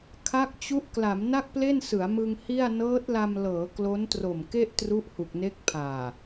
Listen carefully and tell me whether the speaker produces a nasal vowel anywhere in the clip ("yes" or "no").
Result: no